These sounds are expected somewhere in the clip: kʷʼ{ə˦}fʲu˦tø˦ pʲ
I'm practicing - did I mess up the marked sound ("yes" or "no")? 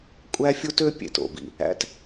yes